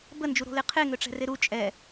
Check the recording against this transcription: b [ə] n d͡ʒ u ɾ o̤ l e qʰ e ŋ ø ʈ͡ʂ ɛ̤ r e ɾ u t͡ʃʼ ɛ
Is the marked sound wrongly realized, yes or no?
no